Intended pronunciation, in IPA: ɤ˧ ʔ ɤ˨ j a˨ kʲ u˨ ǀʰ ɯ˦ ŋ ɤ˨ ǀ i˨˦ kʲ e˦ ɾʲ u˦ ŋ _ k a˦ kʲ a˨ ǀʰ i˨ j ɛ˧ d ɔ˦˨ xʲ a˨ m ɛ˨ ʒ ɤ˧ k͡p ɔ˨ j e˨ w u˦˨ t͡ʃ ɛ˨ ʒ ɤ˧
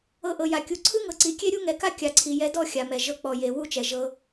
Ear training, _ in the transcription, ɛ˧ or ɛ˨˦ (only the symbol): ɛ˨˦